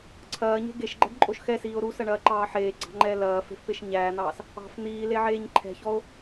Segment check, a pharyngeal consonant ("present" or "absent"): present